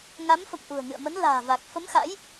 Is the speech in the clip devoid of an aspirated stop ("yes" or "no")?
yes